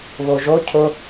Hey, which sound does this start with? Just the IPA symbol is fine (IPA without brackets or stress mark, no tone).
β